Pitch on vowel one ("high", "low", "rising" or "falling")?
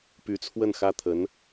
rising